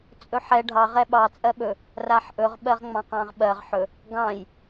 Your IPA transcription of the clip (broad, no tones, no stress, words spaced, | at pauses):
t͡sʼɵħɛ ɖʱɑ ʁɛɓɑ t͡sʼɜɓɵ | raħʔɵʁ ɓɜʁŋ͡mɑ̃qɑ̃ʁɓɜʁ ħɵ | ɡɑ̃j